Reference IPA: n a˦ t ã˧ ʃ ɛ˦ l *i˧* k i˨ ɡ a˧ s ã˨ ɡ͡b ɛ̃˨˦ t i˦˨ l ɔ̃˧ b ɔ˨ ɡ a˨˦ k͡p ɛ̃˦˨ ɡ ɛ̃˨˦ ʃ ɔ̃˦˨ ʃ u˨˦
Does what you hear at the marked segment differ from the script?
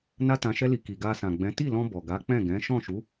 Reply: no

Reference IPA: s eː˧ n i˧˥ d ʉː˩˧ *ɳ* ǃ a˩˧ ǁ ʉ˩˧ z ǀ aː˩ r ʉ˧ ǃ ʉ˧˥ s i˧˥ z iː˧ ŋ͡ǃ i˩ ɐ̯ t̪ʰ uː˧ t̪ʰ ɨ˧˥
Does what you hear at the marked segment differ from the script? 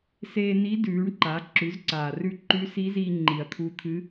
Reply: no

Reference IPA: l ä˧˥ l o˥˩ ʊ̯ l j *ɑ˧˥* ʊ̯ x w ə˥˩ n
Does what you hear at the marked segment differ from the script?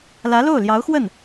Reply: no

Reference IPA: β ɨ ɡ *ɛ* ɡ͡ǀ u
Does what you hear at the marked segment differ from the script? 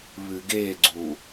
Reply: yes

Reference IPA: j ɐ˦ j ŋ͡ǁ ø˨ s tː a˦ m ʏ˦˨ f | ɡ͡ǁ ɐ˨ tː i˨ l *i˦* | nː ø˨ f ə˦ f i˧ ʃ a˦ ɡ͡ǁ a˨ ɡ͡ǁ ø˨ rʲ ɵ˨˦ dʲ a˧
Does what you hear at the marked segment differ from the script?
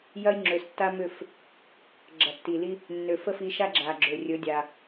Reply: no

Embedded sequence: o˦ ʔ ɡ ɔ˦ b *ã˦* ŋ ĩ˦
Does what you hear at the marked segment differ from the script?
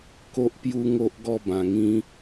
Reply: yes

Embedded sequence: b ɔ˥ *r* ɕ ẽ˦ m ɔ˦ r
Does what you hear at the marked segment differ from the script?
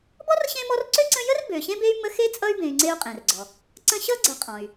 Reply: no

